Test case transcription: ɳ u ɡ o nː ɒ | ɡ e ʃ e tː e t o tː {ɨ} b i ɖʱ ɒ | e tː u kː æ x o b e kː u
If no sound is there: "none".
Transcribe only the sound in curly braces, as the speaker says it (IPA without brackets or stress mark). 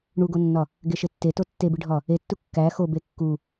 e